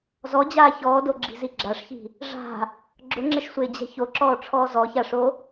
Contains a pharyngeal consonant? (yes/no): no